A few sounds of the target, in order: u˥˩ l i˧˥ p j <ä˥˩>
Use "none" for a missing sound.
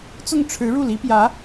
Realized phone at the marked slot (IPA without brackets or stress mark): ä˧˥